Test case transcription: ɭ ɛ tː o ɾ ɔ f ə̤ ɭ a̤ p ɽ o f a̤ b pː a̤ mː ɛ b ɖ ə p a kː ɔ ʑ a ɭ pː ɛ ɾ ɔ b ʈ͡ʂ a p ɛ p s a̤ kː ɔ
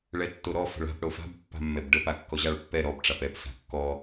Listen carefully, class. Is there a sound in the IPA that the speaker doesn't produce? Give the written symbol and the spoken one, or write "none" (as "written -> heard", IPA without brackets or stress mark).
none